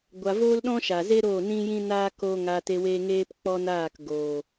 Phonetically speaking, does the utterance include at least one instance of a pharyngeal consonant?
no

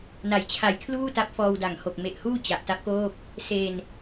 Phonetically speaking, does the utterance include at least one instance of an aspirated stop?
yes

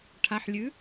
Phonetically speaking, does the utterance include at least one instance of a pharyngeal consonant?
yes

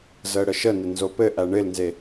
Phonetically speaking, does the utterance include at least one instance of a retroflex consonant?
yes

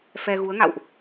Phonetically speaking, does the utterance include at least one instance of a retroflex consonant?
no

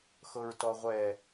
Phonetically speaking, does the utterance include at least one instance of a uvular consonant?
yes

